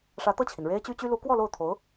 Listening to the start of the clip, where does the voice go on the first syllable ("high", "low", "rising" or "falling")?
rising